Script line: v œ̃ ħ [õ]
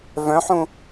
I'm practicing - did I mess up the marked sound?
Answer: yes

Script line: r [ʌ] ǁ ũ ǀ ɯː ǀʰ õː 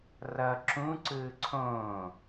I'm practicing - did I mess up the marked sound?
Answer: no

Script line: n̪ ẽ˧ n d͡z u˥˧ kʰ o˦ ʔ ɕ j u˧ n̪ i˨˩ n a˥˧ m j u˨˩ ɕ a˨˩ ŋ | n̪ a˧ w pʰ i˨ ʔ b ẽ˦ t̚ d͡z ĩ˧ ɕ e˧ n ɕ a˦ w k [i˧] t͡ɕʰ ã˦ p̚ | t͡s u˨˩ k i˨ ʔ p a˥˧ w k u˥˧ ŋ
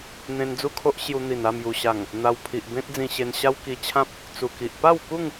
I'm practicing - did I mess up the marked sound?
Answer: no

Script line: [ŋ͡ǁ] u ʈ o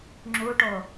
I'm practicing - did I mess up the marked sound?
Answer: no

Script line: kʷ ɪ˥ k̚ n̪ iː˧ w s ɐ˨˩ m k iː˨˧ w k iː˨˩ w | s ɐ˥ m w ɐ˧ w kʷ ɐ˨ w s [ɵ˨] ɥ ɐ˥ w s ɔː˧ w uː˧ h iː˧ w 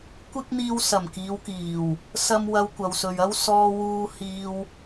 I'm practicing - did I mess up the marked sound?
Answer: no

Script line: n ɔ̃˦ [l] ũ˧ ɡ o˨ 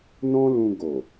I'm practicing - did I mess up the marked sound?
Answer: no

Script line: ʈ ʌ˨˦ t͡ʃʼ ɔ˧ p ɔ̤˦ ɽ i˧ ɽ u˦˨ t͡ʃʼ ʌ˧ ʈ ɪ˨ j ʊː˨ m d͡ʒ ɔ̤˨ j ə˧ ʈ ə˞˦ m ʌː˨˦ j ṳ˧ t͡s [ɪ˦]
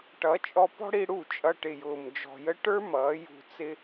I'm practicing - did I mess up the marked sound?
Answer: no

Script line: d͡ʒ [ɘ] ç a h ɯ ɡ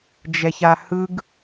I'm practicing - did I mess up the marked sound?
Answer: yes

